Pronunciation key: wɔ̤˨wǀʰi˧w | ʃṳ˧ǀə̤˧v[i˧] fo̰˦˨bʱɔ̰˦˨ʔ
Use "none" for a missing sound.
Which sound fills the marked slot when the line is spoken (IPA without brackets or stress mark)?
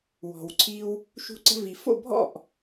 i˨